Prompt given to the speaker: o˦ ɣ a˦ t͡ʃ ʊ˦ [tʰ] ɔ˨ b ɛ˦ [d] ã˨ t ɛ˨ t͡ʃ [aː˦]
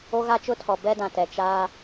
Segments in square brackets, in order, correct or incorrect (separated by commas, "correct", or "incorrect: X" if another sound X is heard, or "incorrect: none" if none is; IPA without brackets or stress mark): correct, correct, correct